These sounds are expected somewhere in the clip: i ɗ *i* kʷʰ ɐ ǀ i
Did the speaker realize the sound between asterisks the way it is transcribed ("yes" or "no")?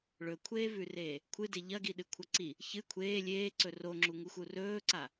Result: no